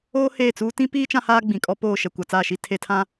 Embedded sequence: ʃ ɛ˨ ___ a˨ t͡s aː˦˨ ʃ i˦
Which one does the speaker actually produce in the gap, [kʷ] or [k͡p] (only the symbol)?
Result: kʷ